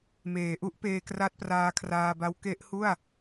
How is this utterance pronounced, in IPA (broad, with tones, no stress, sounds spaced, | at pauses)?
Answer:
m eː˩˦ ʔ u˦˥ ʔ p eː˧ k r a˦˥ t̚ p r aː˧ kʰ r aː˧ b a˦˥ w k e˦˥ ʔ h u˥˩ a̯